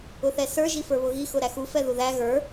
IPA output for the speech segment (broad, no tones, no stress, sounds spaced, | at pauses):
ʊ θ ɛ s ə˞ ʒ i f ə˞ β ʊ ɣ i x ʊ ɾ æ x u f ɛ ð u ð æ ɣ ə˞